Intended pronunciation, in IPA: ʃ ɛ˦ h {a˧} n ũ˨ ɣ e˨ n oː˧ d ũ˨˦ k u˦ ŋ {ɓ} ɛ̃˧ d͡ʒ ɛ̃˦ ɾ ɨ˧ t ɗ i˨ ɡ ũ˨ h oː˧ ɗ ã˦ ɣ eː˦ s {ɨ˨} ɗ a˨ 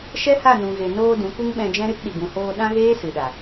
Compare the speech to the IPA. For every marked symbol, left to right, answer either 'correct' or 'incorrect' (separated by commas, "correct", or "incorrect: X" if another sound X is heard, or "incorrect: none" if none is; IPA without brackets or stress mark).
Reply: incorrect: a˦˨, correct, correct